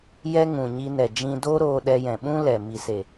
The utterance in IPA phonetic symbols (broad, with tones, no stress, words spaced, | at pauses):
jɛ˦ŋũ˨ɲi˧ nɛ˨d͡ʒĩ˧doː˦ɾoː˧ ɗɛ˧jɛ̃˨ɓũ˦ lɛ˨ mi˨se˨